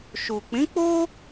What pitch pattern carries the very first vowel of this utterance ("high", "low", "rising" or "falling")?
low